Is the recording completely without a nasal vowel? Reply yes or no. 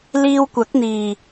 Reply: yes